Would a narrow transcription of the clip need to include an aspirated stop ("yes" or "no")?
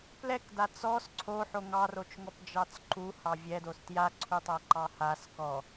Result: yes